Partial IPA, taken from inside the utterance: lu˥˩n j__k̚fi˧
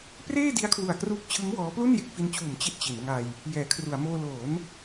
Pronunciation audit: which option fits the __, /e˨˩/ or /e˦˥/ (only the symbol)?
e˦˥